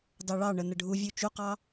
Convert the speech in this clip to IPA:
d ɑ ɭ ɑ ɳ ə n ə ɖʱ u vʲ u t͡ʃ u q ɑ

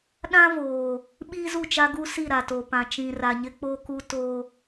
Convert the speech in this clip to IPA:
ɗ ã˦ v oː˨ | ɓ iː˦ z u˦˨ t͡ʃ a˦ ɡ u˦ s i˦˨ ɾ a˨ t o˨ p ã˨ t͡ʃ ĩ˨ r a˨ ɲ ɪ˦ k͡p o˦ k u˦ t o˦

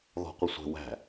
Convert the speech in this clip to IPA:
ð ɔ̤ qʷ ɪ sʷ ɛ̤ w æ̤

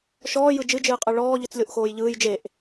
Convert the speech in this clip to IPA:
ʃ ɔː j ɯ d͡ʒ ɨ d͡ʒ ɨː qʼ ɯ ɭ ɔː ʎ ɯ t͡s lʲ o ʔ x oː j ʎ ɯː j d͡ʒ e ʔ

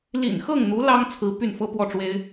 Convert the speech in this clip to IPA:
l ḭ˨˩ n x ɤ˥˩ ŋ n̪ u˧˥ l ɑ˥ ŋ t͡sʰ ɹ̩˧˥ p y˥˩ n f ɤ˥ p w ɔ˥˩ ʈ͡ʂ w e˥ ɪ̯

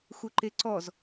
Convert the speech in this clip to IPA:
x u ǃ e ǀ ɔ z

